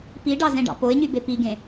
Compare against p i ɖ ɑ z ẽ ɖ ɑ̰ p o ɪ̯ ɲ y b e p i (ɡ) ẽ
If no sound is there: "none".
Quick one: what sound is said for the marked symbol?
ɡ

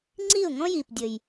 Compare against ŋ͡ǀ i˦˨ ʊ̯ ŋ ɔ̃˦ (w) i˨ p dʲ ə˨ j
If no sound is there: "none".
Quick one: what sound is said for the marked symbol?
j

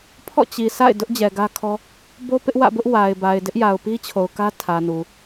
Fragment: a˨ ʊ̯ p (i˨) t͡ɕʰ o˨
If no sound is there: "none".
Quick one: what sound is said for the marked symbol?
i˦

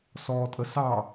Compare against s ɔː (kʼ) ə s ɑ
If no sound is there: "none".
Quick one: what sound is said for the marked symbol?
tʼ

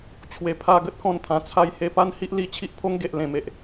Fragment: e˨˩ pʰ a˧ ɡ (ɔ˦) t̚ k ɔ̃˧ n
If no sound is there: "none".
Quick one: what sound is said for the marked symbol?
ə˦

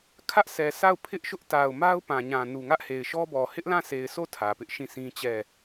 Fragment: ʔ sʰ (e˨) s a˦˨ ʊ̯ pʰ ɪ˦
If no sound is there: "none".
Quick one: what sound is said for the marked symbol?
ɛ˨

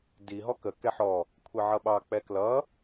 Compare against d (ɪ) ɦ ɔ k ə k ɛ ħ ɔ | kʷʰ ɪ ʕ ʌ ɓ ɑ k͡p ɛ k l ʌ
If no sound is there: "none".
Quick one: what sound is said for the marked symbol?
i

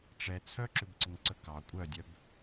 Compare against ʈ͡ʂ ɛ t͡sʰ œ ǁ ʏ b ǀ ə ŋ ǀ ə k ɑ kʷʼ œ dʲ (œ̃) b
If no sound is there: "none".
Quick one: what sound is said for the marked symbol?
œ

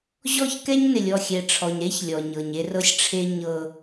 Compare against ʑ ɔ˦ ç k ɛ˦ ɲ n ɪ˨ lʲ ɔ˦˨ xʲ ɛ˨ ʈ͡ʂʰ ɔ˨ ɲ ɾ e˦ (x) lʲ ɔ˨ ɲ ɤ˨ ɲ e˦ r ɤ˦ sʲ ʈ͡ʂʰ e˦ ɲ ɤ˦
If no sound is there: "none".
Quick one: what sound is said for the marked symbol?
ç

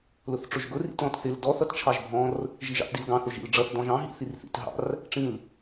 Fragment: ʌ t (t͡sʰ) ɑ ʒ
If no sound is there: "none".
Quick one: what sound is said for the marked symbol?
t͡ʃʰ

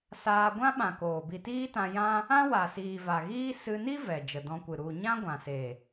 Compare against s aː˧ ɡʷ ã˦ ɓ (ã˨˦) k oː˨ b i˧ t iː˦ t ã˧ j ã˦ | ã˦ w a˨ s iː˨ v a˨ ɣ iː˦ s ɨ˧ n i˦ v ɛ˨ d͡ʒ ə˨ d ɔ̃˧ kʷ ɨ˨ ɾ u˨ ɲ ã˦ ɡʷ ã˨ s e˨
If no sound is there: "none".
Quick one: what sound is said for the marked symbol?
ã˨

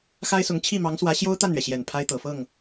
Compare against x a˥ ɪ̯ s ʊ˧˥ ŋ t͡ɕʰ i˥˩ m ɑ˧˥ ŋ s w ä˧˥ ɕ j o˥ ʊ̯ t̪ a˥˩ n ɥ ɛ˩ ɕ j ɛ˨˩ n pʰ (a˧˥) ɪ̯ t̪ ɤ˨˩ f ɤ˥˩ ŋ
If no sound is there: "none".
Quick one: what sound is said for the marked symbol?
a˥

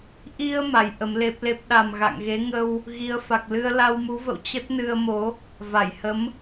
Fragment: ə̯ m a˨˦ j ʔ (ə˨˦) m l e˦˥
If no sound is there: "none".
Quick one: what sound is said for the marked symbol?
ə˨˦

